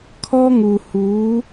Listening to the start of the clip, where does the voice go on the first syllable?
high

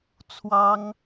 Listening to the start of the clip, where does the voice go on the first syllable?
high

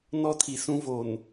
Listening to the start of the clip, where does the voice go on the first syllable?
high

